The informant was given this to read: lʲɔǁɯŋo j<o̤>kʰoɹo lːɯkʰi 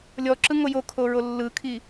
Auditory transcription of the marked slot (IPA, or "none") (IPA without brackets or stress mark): o